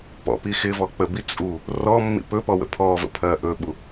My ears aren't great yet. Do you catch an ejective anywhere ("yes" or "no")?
yes